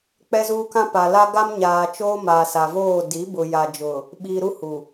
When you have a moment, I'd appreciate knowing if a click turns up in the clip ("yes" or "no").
no